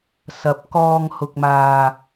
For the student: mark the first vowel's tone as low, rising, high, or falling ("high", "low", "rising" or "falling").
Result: low